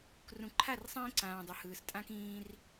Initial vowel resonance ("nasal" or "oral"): nasal